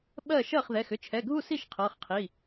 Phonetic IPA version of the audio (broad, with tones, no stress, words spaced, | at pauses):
ɓɜ˥˩ ʃɜ˥˩χðɛ˩˧˩xʏ˥˩ t͡ʃʰɛ˩˧˩ɡʱu˥˩si˥˩ʃ qʰɤ˩˧˩χqʰi˩˧˩